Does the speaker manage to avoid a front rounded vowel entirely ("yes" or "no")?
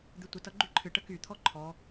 no